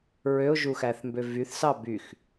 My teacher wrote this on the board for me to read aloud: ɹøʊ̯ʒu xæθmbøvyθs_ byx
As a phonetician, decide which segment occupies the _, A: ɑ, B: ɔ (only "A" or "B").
A